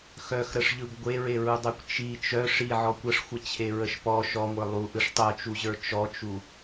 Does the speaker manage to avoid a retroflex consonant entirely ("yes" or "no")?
no